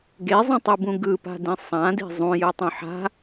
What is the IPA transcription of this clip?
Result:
ɡ e zˤ ẽ tˤ ɯ b ũ ɡ ɯ p a̤ d ĩ sˤ ã d i̤ zˤ ũ j ɯ tˤ ũ ħ a̤

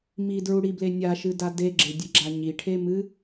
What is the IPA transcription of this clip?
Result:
m i d ɹ u ɽ i b l e nʲ a ʃ ɨ d a d e ɡ͡ǁ e dʲ ɨ ɡ͡ǁ a ɲ i ʈʰ e m ɨ

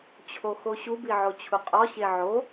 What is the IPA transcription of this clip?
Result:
t͡ɕʰ o x o ɕ u b i ʕ o t͡ɕʰ u qʼ ɒ ɕ e ʕ o

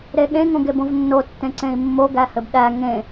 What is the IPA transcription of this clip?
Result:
ɾ e ɠ ẽ ŋ õ ɡ e b õ v nː o tː ẽ ǀ ẽ i̯ mː o ɡ æ h ɘ b ɗ æ ŋ ẽ

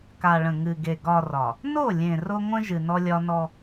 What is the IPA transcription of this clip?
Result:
k a˨ ɭ ə̃˨ ŋ ɨ˨ ɡ e˨ ɡ ɒ˨ r ɒ˨ | n o˦˨ lʲ ẽ˨ r o˦ ŋʷ ə̃˦ ʒ ɨ˨ n ɔ˦ lʲ ɒ˦ n ɔ˦

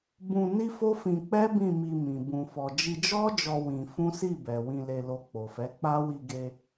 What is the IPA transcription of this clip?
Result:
b ũ˧ n i˦ f o˦ f ĩ˧ k͡p ɛ˦ b ĩ˦˨ m i˧ m ĩ˨ b ũ˨ f ɔ˨ d͡ʒ i˧ d͡ʒ ɔ˦ d͡ʒ ɔ˧ w ĩ˧ f ũ˦ s i˦˨ b ɛ˨ w ĩ˧ l e˧ l o˧ k͡p o˨ f ɛ˨˦ k͡p a˦ w i˧ ɡ e˧

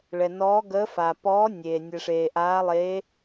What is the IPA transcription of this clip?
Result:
ɭ ɛ˩ n ɔː˨˥ ɡ əː˨˥ f a˩ p ɔː˨˥ nʲ eː˩ nʲ ɛ˩ ʂ eː˩ ʔ aː˨˥ lˠ eː˨˥

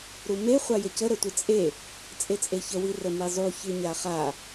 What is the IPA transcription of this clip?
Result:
ɾ u m e χʷ a j ə c ə ɾ ə tʷ ɨ t͡sʼ e | t͡sʼ e t͡sʼ e ç ə w i r ə m i zˤ u ç ɨ ɲ a χ a

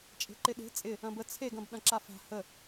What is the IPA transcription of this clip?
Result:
t͡ʃʼ e̤ ǃ ɪ ɗ e̤ t͡sʼ ɪ | ɐ̃ b ə t͡sʰ e ɡ ɐ̃ b ɗ ɐ̃ ǁ a f a̤ h ə

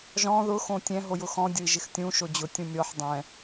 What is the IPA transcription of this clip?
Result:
ʒ ɔ̃ ð ʊ x õ tʲ ɛ̃ ɦ o j ʊ x ɔ̃ dʲ ʊ i̯ ʒ ɪ x tʲ ũ ʃ o d͡ʑ ʊ tʲ ũ mʲ ɔ ħ dˤ ɛ̃

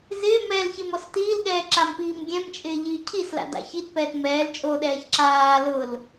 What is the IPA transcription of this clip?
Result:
z ɪː m ɛ l ç e m ɔ s t iː l ɠ ɛː ǁ a m p iː m ɡʲ ɛ̃ m t͡ʃʼ ɪː ʎ iː cʰ i s l a̰ d a̰ ç i t p ɛː t m ɛː l t͡ʃʼ o ɗ ɛː ç ǁ aː l ʊ l

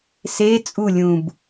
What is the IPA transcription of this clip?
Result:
s e t͡sʼ u lʲ ũ b

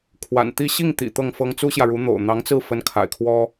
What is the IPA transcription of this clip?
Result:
kʰ w a̰˨˩ n t̪ i˥˧ ɕ i˥˩ ŋ t̪ ḭ˨˩ t̪ ɤ˥˩ ŋ f ɤ˥ ŋ t͡s u˥ ɕ j ä˨ ɻ u˧˥ n̪ o̰˨˩ ʊ̯ n̪ ɑ˧˥ ŋ t͡s ɹ̩˥˩ f ə˧˥ n kʰ a̰˨˩ ɪ̯ kʰ w ɔ˥

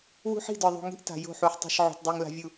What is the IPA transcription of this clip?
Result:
w ṳ˦ ħ i̤˦˨ d ə˞˨ ðˤ ṳ˨ ŋ i̤˦ ʔ t a̤˨ j o̤˦˨ ħ u˨ ħ tˤ i̤˨ ʃ ʕ o̤˨ t dˤ i˨ ŋ l a̤˦ vʲ u˦˨

